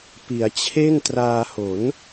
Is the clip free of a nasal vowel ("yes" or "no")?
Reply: yes